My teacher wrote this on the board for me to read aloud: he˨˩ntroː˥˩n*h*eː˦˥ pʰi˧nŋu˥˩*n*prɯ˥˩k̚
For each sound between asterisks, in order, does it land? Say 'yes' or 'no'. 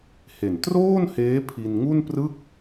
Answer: yes, yes

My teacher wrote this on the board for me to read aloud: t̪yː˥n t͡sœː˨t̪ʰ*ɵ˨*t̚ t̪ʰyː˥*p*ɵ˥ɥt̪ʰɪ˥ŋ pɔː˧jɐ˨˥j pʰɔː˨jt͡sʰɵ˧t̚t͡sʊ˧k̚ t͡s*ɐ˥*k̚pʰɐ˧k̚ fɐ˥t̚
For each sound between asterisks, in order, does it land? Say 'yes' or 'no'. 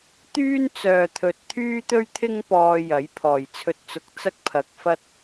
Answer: yes, no, yes

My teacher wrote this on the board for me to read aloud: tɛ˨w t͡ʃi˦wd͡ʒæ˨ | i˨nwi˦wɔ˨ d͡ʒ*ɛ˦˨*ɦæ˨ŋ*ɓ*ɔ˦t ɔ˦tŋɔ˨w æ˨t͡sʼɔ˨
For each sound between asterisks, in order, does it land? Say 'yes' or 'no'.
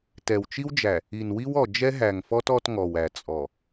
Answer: no, no

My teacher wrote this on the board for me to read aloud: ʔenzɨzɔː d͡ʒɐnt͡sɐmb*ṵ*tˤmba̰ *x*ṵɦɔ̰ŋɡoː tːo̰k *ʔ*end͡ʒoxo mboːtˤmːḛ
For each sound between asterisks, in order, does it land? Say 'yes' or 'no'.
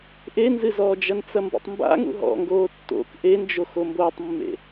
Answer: yes, no, yes

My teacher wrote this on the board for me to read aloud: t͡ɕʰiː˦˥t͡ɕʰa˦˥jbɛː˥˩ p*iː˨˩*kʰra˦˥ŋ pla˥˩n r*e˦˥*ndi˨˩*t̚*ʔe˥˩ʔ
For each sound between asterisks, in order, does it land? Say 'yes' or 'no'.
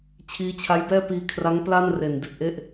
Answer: no, no, yes

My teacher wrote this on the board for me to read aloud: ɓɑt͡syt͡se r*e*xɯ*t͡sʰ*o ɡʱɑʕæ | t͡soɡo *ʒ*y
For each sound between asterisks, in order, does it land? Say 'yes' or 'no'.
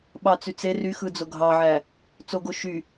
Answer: no, no, no

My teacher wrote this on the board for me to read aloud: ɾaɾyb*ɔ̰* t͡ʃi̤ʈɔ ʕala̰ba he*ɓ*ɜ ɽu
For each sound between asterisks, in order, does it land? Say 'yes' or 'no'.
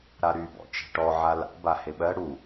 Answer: yes, yes

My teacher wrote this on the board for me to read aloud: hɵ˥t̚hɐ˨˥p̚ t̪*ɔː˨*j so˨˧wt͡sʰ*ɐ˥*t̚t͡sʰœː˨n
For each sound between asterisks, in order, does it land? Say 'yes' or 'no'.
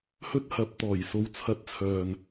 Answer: no, no

